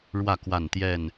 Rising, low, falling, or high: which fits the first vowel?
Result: falling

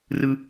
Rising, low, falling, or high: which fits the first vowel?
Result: high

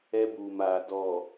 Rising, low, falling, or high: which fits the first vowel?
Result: high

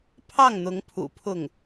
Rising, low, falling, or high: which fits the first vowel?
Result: falling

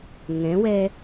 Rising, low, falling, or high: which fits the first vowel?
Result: rising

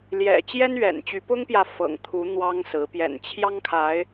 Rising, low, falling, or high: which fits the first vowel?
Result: low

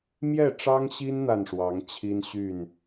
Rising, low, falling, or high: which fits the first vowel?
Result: falling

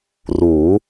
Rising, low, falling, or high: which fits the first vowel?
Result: rising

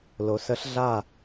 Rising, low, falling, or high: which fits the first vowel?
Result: low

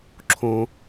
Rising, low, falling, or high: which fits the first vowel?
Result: low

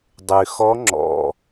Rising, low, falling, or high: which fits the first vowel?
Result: low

